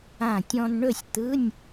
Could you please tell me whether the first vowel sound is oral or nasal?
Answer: nasal